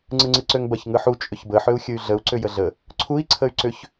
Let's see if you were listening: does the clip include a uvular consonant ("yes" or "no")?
no